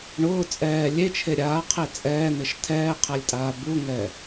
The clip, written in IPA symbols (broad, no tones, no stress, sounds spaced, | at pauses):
ɳ ʊː t͡sʼ ɛː lʲ e t͡ʃʰ e ɾʲ aː qʰ e t͡sʼ ɛː n̪ ɪ ʃ tʰ ɛː qʰ ɛ lʲ tʼ aː b u ŋ ɛ